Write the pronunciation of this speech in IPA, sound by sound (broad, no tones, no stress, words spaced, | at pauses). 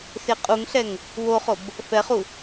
seqʼuŋɬɛŋ | woχob | fɛχu